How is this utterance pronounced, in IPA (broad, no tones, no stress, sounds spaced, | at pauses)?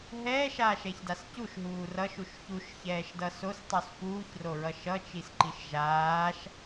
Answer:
ɦ ɛː ʃ aː ʃ ɛ ç d a s c u ʃ ɦ uː r ʌ ʃ u ʃ ç u ʃ ç ɛː ʃ d ʌ s o s tˤ u s f uː ç r o ɹ ʌ ʃ ʌ t͡ʃ i s ǃ i ʃ ʒ aː ʃ